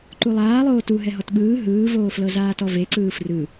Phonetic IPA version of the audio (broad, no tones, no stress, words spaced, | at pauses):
ǃulˠaːlˠoː tu ɦɛɦɔtɓɯː ɦɯːvoːflɤ zaːtɔveǀɯː frɯ